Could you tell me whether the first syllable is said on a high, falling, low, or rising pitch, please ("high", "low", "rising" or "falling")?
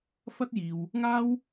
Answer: high